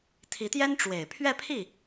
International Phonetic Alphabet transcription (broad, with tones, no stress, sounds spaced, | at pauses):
t̪ʰ i˧˥ t̪ j ɛ˥ n ʈ͡ʂ w e˨˩ ɪ̯ pʰ ɥ ɛ˥˧ pʰ i˥˩